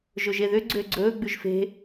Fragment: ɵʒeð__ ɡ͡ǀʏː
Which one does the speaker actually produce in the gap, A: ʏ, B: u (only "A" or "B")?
A